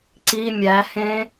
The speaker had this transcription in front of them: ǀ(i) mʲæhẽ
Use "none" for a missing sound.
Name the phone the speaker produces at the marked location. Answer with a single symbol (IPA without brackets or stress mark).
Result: i